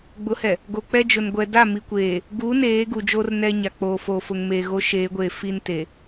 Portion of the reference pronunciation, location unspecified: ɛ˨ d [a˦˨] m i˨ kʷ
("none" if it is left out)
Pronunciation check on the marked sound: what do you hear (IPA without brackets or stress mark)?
a˦˨